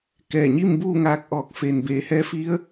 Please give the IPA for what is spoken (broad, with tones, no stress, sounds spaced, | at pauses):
k ɛː˧˩ ɲ i˥˨ m b uː˥˨ ŋ aː˧ k̚ ʔ ɔː˧˩ k̚ f eː˩ n b eː˩˧ h ɛː˧˥ f i˧˥ ə̯